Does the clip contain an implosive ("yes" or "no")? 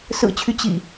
no